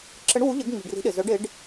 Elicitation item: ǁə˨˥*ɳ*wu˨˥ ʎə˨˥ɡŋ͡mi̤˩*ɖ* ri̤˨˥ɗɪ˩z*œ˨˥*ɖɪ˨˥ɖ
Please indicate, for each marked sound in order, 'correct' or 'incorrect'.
correct, correct, correct

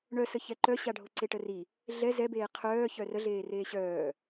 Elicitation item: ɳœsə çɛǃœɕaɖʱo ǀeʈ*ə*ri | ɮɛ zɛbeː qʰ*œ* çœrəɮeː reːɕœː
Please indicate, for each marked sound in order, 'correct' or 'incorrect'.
correct, incorrect: œː

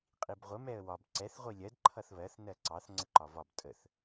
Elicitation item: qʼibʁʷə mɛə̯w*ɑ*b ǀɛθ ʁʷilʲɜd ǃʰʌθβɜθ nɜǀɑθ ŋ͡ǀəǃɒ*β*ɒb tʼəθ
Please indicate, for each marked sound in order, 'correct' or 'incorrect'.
incorrect: ɒ, incorrect: v

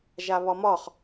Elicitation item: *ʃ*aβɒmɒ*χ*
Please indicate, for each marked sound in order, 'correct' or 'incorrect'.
incorrect: ʒ, correct

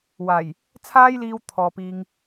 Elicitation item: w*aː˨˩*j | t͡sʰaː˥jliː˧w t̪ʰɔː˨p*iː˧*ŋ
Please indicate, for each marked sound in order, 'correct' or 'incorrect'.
correct, correct

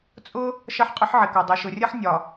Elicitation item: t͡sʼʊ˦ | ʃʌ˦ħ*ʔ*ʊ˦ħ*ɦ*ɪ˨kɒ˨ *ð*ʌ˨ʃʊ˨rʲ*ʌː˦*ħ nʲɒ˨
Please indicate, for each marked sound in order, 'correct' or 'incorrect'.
incorrect: qʼ, incorrect: ʕ, incorrect: dˤ, incorrect: ʌ˦

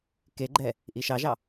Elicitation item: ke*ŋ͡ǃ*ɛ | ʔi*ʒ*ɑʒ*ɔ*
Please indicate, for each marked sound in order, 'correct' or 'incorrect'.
incorrect: ɡ͡ǃ, incorrect: ʃ, incorrect: ɑ

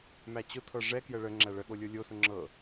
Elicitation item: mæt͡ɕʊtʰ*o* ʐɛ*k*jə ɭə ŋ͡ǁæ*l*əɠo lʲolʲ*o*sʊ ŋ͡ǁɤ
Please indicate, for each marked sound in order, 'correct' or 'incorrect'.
incorrect: ɤ, correct, incorrect: ɭ, correct

